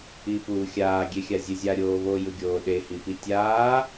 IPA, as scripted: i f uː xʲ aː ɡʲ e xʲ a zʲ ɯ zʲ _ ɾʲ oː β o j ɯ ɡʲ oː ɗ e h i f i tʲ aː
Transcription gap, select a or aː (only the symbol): a